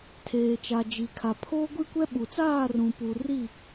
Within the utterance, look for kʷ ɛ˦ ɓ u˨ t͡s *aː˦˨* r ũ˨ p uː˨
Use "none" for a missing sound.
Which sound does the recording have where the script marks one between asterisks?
aː˦˨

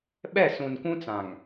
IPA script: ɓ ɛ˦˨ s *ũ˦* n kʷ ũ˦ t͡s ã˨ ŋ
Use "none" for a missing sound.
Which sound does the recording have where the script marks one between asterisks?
ũ˨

